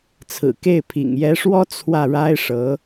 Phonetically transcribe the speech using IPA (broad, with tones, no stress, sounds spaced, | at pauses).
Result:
t͡sʰ ɹ̩˨˩ k e˥˩ ɪ̯ pʰ ḭ˨˩ ŋ j ɛ˧˥ ʂ w ɔ˥ t͡sʰ w ä˥˩ ɻ a˥ ɪ̯ ʂ ɤ˧˥